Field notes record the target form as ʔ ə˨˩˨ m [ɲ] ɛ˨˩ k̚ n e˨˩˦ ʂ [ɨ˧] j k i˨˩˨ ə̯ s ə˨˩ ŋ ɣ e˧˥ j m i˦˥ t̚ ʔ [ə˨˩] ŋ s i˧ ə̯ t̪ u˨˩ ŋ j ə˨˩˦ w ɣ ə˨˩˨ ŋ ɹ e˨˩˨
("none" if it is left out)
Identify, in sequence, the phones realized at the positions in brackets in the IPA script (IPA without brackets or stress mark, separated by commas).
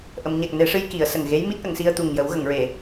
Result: ɲ, ɨ˧, ə˨˩˨